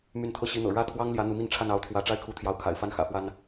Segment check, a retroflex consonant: present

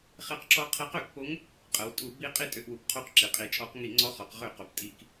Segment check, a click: present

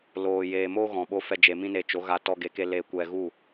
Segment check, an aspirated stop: absent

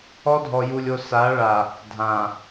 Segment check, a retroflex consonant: present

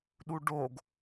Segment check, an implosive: present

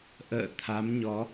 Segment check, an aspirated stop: present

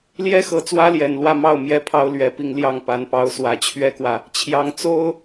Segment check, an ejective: absent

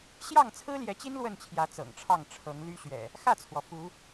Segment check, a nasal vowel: absent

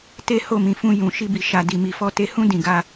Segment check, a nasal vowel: present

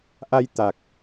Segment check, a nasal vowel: absent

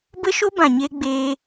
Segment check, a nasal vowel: present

